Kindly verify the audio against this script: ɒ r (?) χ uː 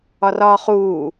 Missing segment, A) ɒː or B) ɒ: A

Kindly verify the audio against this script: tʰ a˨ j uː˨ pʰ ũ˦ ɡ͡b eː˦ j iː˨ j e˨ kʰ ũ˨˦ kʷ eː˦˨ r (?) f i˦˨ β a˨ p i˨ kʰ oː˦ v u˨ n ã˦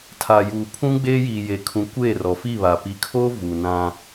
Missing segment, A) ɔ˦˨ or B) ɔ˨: B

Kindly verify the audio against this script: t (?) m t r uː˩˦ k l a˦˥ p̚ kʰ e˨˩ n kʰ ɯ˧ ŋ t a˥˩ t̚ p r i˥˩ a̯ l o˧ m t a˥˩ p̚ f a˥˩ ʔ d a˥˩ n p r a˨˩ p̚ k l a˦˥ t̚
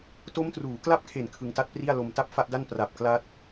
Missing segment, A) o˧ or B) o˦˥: B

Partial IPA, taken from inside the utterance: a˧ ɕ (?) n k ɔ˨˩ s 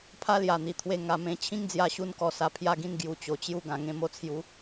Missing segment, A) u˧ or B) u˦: A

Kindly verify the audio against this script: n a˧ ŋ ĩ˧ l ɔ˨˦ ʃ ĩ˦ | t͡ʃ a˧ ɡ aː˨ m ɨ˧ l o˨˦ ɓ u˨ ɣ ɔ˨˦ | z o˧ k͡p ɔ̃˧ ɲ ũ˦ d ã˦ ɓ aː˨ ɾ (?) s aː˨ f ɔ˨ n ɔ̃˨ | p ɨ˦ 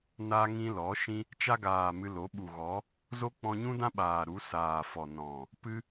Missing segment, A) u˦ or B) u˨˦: B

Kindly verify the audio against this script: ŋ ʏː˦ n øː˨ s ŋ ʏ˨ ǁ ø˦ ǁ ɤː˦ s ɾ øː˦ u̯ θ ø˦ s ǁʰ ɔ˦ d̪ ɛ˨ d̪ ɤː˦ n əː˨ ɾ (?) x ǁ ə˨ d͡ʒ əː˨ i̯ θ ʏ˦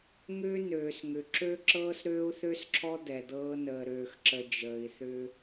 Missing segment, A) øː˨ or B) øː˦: A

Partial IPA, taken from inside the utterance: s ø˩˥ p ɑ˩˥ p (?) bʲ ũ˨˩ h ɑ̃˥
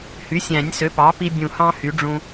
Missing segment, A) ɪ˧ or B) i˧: B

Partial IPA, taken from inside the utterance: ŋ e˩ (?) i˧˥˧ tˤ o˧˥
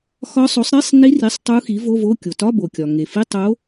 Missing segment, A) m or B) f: B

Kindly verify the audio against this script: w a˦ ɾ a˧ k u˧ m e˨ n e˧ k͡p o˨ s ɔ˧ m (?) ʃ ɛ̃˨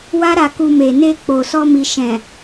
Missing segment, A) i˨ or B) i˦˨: A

